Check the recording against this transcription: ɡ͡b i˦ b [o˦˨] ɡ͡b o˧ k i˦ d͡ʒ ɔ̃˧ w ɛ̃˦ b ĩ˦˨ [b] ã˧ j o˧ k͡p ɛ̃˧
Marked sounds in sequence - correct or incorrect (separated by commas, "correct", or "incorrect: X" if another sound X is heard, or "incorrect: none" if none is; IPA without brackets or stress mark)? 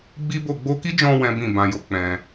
correct, correct